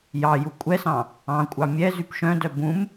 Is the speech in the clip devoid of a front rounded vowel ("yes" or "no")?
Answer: no